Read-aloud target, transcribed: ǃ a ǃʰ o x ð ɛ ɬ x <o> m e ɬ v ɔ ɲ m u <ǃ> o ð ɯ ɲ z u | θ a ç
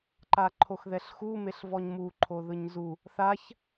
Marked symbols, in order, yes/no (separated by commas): no, no